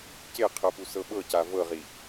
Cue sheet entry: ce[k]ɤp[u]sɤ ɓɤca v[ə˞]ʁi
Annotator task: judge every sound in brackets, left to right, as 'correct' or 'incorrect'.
incorrect, correct, incorrect

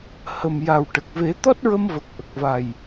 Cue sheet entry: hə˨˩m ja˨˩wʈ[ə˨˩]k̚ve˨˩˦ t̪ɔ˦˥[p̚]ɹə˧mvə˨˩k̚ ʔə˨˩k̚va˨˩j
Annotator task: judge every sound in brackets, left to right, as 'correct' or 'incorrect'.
correct, incorrect

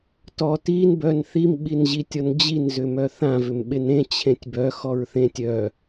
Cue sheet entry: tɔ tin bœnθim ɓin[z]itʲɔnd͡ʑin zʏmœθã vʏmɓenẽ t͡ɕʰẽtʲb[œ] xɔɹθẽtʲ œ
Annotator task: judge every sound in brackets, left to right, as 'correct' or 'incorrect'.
incorrect, correct

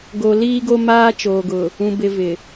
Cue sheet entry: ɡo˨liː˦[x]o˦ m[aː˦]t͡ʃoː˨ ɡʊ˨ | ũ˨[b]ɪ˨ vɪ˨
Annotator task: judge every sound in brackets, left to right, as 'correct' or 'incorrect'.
incorrect, correct, correct

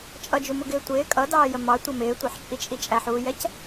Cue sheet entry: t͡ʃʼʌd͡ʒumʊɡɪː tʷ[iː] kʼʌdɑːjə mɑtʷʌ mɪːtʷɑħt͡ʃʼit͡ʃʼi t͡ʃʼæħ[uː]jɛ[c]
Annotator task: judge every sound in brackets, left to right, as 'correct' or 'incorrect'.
incorrect, correct, correct

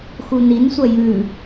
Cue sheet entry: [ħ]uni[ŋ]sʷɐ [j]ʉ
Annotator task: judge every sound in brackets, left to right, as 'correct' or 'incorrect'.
incorrect, incorrect, correct

